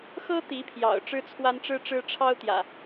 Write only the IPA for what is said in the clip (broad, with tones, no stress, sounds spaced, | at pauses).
x ɤ˦ t̪ i˨˦ pʰ j ɑ̰˨˩ ʊ̯ ʈ͡ʂ ɻ̩˦ t͡sʰ w a˦ n ʈ͡ʂ ɻ̩˦ ʈ͡ʂ ɻ̩˦ ʈ͡ʂʰ ɑ˦ ʊ̯ t̪ j ä̰˨˩